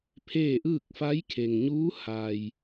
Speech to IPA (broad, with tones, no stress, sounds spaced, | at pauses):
pʰ eː˥˨ ʔ ɯː˥˨ k̚ f a˧˥ j kʰ e˩ ŋ ɲ uː˧˥ h a˩ j